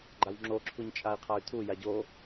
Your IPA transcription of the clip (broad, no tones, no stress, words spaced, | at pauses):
ɡ͡ǃawŋ͡ǁoǁʰuɲ t͡ʃʼai̯qʰay̯tʰu jaɟo